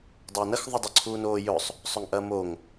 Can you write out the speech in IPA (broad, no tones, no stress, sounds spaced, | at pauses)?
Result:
dˤ ɐː n ɐ x ðˤ ʊ dˤ ʊ ǀʰ uː n oː j ɵ sˤ | sˤ ɵ ŋ ʔ ɐː m o ŋ